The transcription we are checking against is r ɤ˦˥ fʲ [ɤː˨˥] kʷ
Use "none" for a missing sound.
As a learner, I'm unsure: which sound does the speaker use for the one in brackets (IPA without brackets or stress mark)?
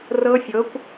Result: ɤ˨˥